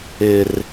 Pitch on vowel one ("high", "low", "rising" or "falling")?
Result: low